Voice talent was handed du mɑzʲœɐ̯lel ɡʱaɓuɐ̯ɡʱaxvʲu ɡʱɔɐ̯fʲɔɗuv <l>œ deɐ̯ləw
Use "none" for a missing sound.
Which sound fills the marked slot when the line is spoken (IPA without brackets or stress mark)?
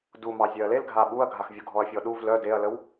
l